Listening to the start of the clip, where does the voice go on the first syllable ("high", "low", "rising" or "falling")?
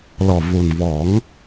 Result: low